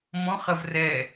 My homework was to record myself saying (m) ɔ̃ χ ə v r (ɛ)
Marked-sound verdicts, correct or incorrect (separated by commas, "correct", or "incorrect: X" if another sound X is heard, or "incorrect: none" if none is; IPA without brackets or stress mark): correct, correct